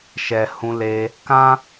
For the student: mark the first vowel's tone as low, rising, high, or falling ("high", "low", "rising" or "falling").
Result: low